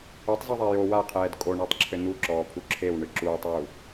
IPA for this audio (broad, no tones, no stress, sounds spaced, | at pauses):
o tˤ z i ðˤ a j o w a qʰ ɛː d kʼ o ɳ a tˤ ǁʰ ɘ n̪ u ǁ ɔː pʰ u ǁʰ e w ɳ ɨ ǁ uː tˤ w u